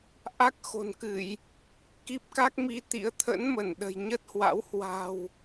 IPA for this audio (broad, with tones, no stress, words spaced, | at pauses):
ʔa˦˥k̚xo̤˨˩nkɨ˧˩˨j | ki˦˥p̚ka˦˥k̚mi˧t̪ḭ˧˥ə̯ t̪ʰə̰˧˥nmə˧˩nɗə̤˨˩j ɲə˦˥t̚hwa̰˧˥w hwa̤˨˩w